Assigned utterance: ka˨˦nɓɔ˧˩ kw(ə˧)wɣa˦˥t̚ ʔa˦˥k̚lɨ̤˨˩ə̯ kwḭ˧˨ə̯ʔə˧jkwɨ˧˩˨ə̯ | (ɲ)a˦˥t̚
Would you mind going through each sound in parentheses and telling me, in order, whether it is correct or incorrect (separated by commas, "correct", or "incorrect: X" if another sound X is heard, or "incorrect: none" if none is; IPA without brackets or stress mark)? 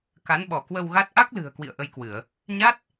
correct, correct